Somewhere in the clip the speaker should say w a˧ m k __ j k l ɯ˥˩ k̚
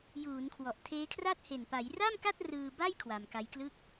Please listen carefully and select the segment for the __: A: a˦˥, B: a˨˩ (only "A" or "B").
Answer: A